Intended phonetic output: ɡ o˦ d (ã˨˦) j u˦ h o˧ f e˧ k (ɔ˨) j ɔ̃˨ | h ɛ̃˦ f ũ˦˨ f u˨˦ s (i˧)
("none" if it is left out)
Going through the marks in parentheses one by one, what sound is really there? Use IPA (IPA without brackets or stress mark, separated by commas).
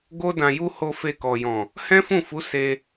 ã˧, ɔ˨, e˧